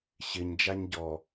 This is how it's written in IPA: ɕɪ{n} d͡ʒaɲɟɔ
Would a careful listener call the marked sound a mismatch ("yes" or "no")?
yes